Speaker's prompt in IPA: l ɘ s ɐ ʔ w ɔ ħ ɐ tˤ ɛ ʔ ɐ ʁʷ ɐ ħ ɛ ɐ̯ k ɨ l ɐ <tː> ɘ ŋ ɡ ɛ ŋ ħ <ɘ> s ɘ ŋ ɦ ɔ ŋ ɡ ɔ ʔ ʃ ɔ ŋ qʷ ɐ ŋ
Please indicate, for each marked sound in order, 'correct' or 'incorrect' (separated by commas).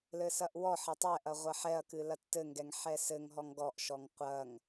correct, incorrect